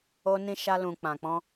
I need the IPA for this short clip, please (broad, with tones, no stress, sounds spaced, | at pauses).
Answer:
o˧ n ĩ˧ ʃ a˧ l ũ˨ k͡p ã˨ k͡p ɔ̃˧